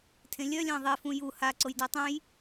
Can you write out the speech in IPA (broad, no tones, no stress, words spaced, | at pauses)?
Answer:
tʰẽlʲœlʲã ðˤefũ ju haǀoj dœtˤœ̃j